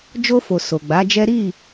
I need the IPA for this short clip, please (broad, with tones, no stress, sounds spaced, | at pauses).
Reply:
d͡ʒ o˧ f o˨ s o˨ ɡ͡b a˨˦ d͡ʒ ɛ˦ ɾ i˦˨